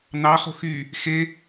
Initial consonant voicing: voiced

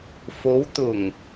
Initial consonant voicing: voiceless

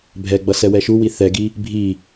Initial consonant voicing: voiced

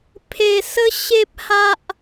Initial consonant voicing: voiceless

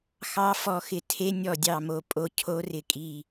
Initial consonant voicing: voiceless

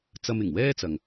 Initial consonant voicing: voiceless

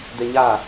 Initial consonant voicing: voiced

